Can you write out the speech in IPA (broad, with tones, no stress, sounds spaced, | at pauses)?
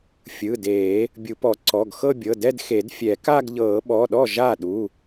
fʲ ɯ˩˧˩ d eː˨˩˦ | bʲ u˨˩˦ p ɔ˨˩˦ ǀ ɔ˩˧˩ ɡ x ɤ˥˧ bʲ ɤ˩˧˩ d ɛ˥˧ d x e˨˩˦ d fʲ ɛ˨˩˦ k a˥˧ ɡ ʎ ɤː˨˩˦ ɓ ɔ˩˧˩ ɗ ɔ˥˩ ʒ a˥˩ ɗ u˩˧˩